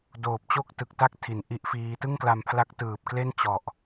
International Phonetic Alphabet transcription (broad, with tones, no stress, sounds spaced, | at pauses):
d oː˨˩ p̚ t͡ɕ o˥˩ k̚ t ɯ˨˩ k̚ t a˥˩ k̚ tʰ i˩˦ n ʔ i˦˥ ʔ f iː˦˥ t ɯ˥˩ ŋ k l a˧ m pʰ l a˦˥ k̚ t ɯː˨˩ p̚ k l e˥˩ n t͡ɕ ɔ˨˩ ʔ